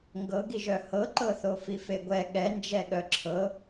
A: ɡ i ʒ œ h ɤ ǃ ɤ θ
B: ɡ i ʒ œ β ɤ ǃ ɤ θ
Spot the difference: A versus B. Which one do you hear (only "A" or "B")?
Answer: A